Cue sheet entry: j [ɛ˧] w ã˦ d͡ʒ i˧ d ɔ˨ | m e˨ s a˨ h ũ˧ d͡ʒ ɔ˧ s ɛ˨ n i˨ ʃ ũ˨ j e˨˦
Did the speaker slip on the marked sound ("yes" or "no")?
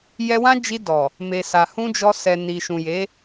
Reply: no